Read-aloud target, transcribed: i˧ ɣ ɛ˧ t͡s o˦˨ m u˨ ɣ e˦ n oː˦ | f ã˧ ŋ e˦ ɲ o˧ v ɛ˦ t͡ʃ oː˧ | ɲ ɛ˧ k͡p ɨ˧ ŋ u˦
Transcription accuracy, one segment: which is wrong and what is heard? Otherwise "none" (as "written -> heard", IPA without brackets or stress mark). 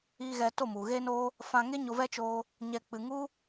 t͡s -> t